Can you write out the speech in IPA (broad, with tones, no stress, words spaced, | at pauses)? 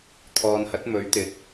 t̪ʰɔː˨nhɐ˨˥t̚ mɵ˨˥ɥt̪ɪ˨˥k̚